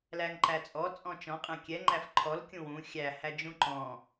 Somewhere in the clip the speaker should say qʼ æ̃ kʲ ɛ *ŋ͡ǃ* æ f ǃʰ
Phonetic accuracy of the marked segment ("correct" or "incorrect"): correct